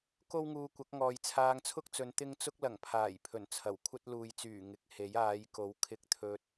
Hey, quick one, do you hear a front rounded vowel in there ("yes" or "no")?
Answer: yes